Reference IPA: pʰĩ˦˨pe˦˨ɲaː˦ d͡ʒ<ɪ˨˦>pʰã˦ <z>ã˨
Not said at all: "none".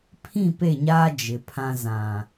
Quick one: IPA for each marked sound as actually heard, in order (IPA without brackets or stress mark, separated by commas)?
ɪ˨˦, z